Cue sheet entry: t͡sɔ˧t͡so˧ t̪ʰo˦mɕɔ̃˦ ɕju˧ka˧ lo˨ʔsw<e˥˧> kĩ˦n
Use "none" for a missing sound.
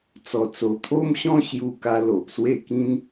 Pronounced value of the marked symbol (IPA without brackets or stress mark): e˥˧